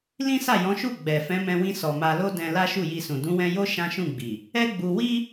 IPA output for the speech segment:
l ĩ˦ s a˦˨ j ɔ̃˨˦ ʃ u˦˨ ɡ͡b ɛ˨ f ɛ̃˨˦ m ɛ̃˧ w ĩ˧ s ɔ˨ m a˧ l o˦ d ɛ̃˧ l a˦ ʃ u˦˨ j i˧ s ũ˨ d ũ˨˦ w ɛ̃˧ j o˦ ʃ ã˦ ʃ ũ˦˨ ɡ͡b i˨ | ɛ˦ ɡ͡b u˧ w i˦

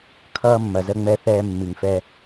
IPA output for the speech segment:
kʰ ʌː˦ mː ɐ˨ z ə˦ ŋ͡m ɛ˦ θ ɛː˦ mː i˨ ŋ f ɛ˦

